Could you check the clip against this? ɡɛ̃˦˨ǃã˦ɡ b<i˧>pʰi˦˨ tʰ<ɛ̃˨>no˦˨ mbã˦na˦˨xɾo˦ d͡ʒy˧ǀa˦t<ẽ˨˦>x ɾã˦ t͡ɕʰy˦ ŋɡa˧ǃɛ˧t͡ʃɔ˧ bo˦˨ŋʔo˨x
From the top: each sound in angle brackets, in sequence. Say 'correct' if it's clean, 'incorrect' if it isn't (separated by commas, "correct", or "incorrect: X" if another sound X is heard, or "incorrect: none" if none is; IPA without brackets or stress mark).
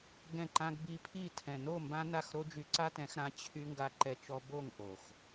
correct, correct, incorrect: ɛ̃˨˦